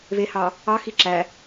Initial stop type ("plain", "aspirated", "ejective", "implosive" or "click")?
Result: click